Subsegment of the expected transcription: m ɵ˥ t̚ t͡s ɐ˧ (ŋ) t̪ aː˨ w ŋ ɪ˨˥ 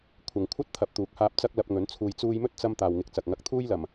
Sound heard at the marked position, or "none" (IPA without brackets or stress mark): m